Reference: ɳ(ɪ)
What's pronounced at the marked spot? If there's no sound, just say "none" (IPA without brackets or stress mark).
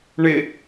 ɪ